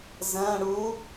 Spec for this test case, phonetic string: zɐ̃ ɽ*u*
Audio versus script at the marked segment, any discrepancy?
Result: no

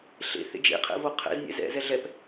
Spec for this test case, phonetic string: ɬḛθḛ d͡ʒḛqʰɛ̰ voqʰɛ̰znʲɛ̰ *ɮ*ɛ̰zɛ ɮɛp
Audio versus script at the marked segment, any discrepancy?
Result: yes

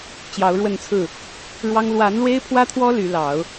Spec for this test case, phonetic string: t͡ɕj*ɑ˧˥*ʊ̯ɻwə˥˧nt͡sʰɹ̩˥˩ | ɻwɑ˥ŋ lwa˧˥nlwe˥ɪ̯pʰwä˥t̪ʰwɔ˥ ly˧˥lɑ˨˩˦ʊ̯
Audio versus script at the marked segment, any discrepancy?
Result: no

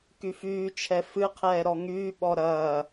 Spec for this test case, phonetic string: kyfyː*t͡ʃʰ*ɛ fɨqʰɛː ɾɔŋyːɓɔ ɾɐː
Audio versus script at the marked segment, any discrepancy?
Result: no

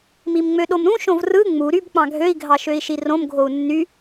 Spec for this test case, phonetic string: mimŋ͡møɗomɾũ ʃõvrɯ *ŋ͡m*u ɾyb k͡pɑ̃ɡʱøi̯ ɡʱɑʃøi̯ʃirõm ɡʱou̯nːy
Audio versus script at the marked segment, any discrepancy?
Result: no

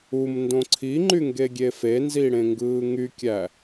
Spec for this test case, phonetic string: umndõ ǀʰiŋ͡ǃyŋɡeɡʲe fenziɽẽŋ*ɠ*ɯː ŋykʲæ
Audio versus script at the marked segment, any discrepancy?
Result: yes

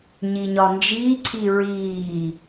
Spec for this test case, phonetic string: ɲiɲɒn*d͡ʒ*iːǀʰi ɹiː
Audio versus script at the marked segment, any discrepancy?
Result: no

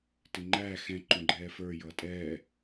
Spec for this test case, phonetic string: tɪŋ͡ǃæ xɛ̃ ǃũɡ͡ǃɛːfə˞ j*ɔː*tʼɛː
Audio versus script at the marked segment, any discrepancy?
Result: yes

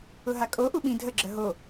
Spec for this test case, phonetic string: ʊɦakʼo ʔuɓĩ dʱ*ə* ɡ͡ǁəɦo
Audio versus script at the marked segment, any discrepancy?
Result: no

